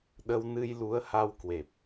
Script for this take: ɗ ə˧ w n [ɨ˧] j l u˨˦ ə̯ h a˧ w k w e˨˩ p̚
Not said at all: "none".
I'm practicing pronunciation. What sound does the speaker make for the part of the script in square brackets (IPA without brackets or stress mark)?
ɨ˧